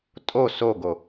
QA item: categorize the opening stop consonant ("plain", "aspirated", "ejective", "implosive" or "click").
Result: ejective